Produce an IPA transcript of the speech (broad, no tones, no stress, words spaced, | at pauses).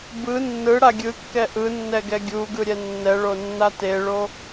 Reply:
bɯ nːɯɽa ɡʲɯkːɛ ʔɯnːɛɡɛ ɡʲuɡɯɾʲɛ nːɛɭonːa teɭo